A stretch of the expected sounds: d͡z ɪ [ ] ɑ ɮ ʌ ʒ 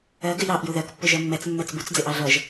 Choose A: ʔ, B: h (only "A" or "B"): A